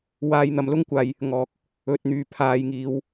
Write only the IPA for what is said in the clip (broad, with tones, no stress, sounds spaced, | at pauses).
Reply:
w aː˧ j n̪ ɐ˨ m l ʊ˥ ŋ kʷ aː˨ j | ŋ ɔː˨ k̚ | ɵ˨ t̚ n̪ yː˨˩ pʰ aː˨ j ŋ iː˨˧ w